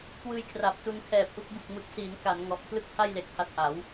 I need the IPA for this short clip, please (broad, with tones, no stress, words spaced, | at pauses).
kwɯː˧jkʰra˨˩p̚tu˧n kʰɛː˨˩p̚ʔu˥˩k̚ bɯ˨˩k̚mɯ˨˩k̚siː˩˦n ka˩˦n ŋɔ˨˩ʔpʰlɯ˥˩k̚pʰa˥˩jle˨˩k̚ ha˦˥t̚ʔa˩˦w